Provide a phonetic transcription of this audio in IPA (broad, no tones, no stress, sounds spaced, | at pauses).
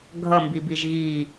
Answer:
ɡʱ ʌ m b i b i ʒ ɣ i